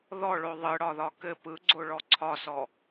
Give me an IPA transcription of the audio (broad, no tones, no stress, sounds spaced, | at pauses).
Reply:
ð ɔ ɭ o ðˤ ɯ ɽ ɒ ð ɒ k ɘ p ɯ ɡ͡ǀ o ɭ ɔ ǀʰ ɒ s ɔ